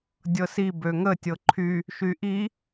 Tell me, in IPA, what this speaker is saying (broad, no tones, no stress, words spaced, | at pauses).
dʲɤsi bøŋə tʲɤǃʰy | ʃyʔi